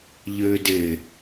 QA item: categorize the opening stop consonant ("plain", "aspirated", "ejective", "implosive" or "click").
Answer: plain